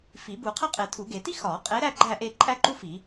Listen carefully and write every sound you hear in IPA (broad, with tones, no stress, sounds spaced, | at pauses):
f i˨˩˦ b u˨˩˦ qʰ æ˥ qʼ e˨˩˦ tʰ u˨˩˦ ɡ e˨˩˦ t i˥ x ɒ˨˩˦ qʼ e˨˦ ɾ æ˥˧ ɡ͡ǃ æ˥˧ ʔ e˥˧ ǃʼ æ˥ ǃ u˥ f i˨˩˦